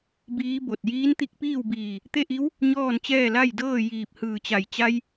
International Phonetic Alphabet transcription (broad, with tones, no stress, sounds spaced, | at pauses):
b iː˧˥ b o˧˩ t̚ j iː˧˥ n t̪ i˧ k̚ p iː˥˨ w b iː˧˩ | t̪ e˥˨ ʔ i˧˥ w | ɲ ɔː˥˨ n t͡ɕ ɛː˥˨ l a˥˨ j d ɤː˥˨ j iː˧˩ p̚ h ɯː˧˩ t͡ɕ a˧˩ j t͡ɕ a˧ j